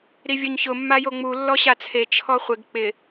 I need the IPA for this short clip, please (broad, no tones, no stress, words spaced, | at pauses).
ɾivʲoɲçʊ mːajoŋ͡mu lːɔɕat͡sʰe t͡ʃʰɔχʷɪɡ k͡pɪ